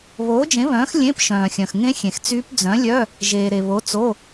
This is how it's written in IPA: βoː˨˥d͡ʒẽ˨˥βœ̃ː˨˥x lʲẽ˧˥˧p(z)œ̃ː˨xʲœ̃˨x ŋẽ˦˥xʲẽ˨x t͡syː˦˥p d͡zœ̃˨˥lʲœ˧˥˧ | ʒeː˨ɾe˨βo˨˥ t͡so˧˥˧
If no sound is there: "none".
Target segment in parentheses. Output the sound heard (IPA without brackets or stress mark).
ʃ